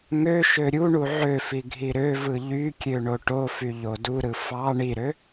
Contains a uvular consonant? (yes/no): no